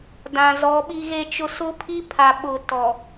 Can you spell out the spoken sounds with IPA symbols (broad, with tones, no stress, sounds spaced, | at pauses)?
d ã˨ z ɔ˨˦ ɓ i˦ ɣ e˦ t͡ʃ ʊ˦ s ʊ˦ pʰ i˦ pʰ a˨ ɓ ʊ˨ t ɔ˨